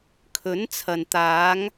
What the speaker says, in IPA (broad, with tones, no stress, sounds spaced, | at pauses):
kʰ ɵ˨˥ n t͡sʰ ɐ˨ n t̪ aː˨˧ ŋ